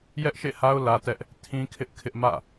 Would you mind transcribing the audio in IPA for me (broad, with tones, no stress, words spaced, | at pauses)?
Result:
jɛ˦ʔʃḛ˦˨ha˦ʊ̯ lä˦tɛ˦ʔ | tʰĩ˦kʰɪ˦ʔ kʰɪ˦ʔmä̰˦˨